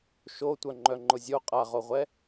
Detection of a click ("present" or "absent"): present